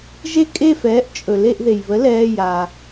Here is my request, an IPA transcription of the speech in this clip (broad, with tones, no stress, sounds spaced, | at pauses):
ʒ e˦ kʼ e˦˨ f ɛː˩˥ ʔ t͡ʃʼ ɵ˩ l e˦˨ ʔ ð e˩ j β ə˩˥ l ɛː˩˧˩ j a˩